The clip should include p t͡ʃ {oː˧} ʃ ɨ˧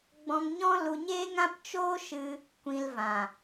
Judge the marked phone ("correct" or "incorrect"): incorrect